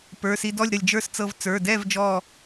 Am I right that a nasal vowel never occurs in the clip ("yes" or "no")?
yes